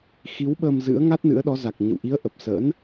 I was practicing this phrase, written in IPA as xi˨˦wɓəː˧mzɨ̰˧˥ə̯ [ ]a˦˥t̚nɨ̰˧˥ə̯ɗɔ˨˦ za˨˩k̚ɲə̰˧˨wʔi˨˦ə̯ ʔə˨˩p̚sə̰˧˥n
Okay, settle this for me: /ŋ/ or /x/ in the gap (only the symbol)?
ŋ